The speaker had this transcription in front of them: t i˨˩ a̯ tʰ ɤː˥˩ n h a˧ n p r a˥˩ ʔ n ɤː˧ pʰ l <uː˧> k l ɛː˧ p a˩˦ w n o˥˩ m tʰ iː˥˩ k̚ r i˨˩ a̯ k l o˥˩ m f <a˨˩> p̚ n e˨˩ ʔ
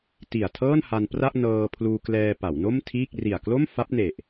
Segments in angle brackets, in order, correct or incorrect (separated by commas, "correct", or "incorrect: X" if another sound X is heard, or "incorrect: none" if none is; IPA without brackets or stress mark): correct, incorrect: a˦˥